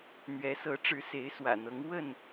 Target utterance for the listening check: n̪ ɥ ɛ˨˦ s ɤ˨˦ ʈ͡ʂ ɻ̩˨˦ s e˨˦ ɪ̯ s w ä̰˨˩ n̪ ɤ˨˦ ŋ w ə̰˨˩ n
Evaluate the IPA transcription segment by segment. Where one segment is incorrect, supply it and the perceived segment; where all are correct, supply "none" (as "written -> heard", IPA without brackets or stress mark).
ə̰˨˩ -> ə˥˨